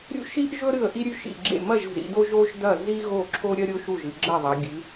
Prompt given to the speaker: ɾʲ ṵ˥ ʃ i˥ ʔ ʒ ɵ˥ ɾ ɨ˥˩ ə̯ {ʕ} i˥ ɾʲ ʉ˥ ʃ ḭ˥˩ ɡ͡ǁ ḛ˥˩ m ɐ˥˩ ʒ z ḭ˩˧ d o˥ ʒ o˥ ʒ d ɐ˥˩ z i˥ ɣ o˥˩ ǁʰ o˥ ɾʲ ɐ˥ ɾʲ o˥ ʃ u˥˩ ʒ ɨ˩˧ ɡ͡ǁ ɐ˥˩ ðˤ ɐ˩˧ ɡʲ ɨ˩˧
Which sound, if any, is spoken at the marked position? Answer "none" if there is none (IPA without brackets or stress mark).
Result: ʔ